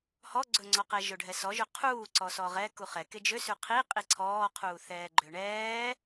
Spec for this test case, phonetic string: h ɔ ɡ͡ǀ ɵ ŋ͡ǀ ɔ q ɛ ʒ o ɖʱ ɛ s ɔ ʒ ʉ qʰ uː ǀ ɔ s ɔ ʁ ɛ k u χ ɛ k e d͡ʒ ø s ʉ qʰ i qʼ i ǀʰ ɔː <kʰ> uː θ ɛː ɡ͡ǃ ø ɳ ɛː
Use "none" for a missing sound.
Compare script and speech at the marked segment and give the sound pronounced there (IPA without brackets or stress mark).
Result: qʰ